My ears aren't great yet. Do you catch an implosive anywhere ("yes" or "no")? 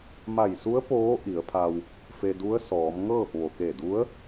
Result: no